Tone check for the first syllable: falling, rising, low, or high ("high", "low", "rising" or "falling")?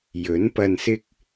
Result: rising